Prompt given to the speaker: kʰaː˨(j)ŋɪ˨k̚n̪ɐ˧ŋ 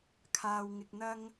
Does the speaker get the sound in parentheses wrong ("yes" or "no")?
yes